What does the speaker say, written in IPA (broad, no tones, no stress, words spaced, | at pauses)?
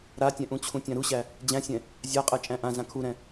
ɾatʲɛ̃ʔũt͡ɕʰũ tʲãɾuɕæ | d͡ʑæ̃sʲɛ̃ | zʲaqʼɛ t͡ʃʼæ̃ʔã zãkʰuɾɛ̃